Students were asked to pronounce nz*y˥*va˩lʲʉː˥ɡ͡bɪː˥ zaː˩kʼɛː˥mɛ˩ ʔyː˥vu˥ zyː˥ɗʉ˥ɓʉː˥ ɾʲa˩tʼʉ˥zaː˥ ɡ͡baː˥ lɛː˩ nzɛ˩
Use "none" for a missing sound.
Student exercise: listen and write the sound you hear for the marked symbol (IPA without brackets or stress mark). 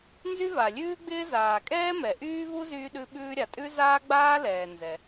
y˥